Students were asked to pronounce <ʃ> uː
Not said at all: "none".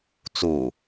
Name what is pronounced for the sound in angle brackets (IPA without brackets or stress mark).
t͡s